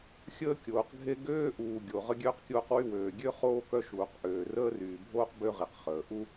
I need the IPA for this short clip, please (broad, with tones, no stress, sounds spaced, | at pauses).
xʲ əː˥ kʲ oː˩ q ɡʱ e˥ ɡ øː˥ ʔ uː˩ ɡʲ o˩ ʁ ə˥ ɡʲ øː˥ q kʲ oː˥ q w y˥ w øː˩ ɡʲ ø˥ χ oː˥ k œ˥ ʃ uː˩ q ʔ øː˩ r əː˥ r yː˩ bʱ oː˥ q b ø˥ ʁ i˩ q χ əː˩ ʔ u˥